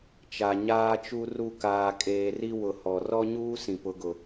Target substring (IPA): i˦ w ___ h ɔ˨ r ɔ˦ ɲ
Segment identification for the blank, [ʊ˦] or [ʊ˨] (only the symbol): ʊ˨